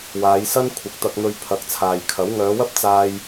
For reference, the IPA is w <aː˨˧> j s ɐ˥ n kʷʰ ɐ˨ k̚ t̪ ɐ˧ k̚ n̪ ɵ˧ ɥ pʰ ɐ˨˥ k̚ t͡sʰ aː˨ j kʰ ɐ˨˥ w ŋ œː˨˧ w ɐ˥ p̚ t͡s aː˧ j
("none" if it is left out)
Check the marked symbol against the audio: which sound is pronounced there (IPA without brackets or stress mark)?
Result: aː˨˧